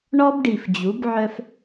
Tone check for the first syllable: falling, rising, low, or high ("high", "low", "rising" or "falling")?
high